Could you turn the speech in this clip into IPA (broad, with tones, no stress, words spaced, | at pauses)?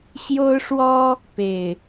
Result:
ɕjo˦ʊ̯ʂwɔ˦ | pe˨˩ɪ̯